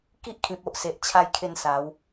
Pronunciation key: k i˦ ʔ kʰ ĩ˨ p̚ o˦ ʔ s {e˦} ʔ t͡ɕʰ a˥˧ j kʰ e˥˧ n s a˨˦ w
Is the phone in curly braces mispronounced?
yes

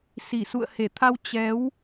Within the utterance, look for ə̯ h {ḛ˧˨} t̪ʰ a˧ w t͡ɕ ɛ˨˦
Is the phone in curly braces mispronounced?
yes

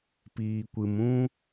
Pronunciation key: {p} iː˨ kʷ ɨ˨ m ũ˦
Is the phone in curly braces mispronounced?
no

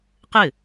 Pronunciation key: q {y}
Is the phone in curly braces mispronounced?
yes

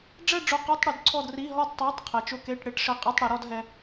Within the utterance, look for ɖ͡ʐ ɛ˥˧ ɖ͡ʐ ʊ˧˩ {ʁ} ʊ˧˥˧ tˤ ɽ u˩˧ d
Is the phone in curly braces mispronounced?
yes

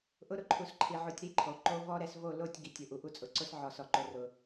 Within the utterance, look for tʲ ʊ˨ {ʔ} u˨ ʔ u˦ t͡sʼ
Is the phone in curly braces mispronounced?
no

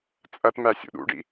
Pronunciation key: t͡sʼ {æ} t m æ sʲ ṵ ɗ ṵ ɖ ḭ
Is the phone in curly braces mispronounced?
yes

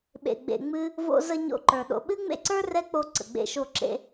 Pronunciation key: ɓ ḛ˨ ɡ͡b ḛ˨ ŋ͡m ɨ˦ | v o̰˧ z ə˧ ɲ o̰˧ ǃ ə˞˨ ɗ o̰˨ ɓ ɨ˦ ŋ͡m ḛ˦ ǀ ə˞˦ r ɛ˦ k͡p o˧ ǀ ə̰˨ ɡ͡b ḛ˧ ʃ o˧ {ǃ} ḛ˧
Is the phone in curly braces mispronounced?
yes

